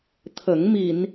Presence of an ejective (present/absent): absent